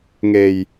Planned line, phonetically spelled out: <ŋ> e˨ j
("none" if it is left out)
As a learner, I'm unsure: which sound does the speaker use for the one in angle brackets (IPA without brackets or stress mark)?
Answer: ŋ